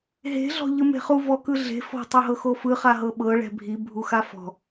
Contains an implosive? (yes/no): yes